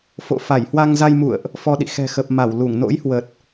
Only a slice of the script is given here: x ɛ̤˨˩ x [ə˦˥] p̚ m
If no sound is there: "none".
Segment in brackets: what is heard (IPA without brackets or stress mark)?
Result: ə˨˩